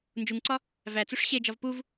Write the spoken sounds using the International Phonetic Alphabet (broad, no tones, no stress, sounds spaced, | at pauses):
n d͡ʒ u ŋ ǀ ɒ | v æ t͡s u ʂ ɕ e d͡ʒ ɒ v p u v